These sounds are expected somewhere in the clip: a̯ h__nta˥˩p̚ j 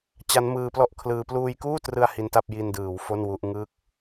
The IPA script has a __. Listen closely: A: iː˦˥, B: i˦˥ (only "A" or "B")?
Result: B